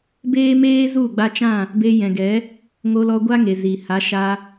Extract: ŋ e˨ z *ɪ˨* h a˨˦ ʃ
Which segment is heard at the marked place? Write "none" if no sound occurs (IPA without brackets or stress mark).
i˨